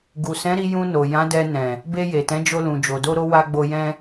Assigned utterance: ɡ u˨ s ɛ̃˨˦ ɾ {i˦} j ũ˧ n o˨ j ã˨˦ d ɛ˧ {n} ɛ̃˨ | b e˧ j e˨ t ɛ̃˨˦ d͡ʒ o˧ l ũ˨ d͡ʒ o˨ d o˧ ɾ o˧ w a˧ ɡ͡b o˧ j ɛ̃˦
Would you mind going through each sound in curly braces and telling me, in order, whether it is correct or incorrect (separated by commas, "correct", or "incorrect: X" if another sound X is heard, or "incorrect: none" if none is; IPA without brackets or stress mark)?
incorrect: i˧, correct